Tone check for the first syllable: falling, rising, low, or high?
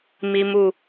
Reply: high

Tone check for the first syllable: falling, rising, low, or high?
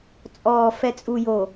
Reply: low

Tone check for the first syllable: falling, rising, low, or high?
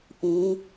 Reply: rising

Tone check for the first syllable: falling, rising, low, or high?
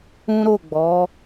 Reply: high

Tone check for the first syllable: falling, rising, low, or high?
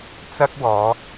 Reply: high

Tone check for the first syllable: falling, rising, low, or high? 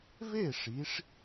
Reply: falling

